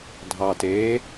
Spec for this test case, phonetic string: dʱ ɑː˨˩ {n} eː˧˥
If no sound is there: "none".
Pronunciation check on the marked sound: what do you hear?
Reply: t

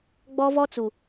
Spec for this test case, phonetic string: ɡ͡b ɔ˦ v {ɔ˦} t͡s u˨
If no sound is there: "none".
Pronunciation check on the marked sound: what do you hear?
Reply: ɔ˦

